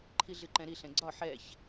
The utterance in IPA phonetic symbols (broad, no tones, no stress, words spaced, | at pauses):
ǃʰiɮɨǃɛ̃ɾi ɬɛ̃ɡ͡ǀɒ ħɛç